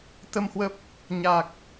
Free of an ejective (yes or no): yes